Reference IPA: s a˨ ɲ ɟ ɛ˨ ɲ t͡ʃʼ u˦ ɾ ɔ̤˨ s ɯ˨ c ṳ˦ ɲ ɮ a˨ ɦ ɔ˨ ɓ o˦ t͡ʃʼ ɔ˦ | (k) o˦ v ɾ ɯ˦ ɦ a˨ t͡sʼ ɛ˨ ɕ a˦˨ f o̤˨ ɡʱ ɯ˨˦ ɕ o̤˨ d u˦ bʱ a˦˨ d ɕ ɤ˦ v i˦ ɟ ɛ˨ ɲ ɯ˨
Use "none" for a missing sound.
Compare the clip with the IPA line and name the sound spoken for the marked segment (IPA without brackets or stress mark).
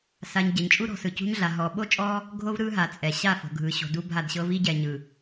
ɡʱ